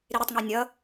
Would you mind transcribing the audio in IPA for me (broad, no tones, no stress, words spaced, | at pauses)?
ɾiɾɪtˤŋi nʲʌ